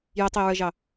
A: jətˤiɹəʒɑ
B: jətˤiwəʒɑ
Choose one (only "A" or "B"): A